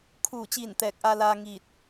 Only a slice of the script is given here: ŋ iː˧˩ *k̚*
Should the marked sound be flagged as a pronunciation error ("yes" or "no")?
yes